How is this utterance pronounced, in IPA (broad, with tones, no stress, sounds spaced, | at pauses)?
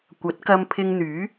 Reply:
kʷ ɐ˨˥ t̚ k ɐ˧ m pʰ ɪ˧ ŋ n̪ yː˨˥